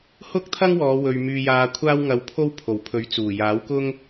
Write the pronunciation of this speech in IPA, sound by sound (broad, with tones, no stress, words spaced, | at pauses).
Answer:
hʊ˥k̚ t̪ʰɐ˥ŋwɔː˨˧ wɵ˨ɥ myː˧jaː˧ kʷʰaː˥wŋɐ˧wpʰo˥w pʰo˨˩wpʰɵ˨˥ɥ t͡suː˨˩ jaː˨˥wkʊ˥ŋ